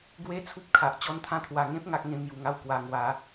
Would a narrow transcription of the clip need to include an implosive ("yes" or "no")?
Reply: no